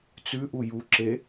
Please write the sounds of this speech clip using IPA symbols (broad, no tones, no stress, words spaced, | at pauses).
t͡sʉʔu juǁe